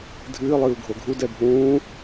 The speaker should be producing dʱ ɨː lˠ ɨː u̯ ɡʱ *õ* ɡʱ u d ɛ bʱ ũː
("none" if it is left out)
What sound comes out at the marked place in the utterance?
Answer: o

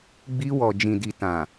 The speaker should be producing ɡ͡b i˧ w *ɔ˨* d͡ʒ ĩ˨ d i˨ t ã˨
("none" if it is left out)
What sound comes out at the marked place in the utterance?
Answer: ɔ˨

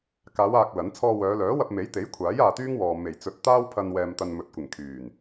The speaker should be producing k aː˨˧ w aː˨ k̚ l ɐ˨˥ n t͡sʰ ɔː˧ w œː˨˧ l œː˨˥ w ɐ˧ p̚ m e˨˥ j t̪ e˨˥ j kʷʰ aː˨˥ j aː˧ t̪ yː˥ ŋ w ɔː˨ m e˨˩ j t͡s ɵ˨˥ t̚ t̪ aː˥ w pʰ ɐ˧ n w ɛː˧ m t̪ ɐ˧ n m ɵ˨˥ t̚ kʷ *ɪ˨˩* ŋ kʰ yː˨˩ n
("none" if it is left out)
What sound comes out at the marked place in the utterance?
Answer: ɪ˨˩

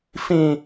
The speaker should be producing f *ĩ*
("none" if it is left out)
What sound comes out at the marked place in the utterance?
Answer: ĩ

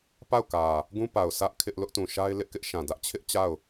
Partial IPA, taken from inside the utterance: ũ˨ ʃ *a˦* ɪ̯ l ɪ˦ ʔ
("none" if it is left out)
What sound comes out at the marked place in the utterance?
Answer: a˦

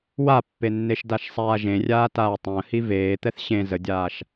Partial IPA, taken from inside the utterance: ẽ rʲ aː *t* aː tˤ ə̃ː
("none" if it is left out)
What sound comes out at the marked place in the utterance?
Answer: t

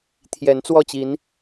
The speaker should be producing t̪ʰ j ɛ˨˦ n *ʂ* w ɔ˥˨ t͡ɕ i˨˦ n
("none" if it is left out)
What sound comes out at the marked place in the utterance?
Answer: t͡s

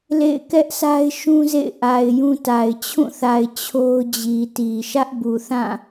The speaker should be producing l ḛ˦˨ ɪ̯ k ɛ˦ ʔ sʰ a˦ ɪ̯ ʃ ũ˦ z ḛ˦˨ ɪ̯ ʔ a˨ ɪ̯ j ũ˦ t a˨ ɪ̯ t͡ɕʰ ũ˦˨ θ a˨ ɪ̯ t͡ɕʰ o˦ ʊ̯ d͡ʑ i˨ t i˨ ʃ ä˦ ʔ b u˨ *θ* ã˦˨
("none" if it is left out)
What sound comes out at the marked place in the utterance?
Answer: θ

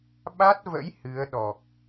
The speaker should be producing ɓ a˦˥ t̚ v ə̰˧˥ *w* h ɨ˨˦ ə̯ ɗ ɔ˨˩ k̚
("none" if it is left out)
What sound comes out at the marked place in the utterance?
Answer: j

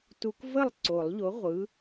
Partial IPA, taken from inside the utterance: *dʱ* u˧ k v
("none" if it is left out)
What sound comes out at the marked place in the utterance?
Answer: t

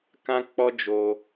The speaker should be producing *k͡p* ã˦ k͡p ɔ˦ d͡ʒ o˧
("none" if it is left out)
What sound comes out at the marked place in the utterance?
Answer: k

